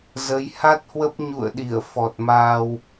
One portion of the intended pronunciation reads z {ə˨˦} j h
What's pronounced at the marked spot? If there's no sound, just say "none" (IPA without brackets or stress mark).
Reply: ə˨˦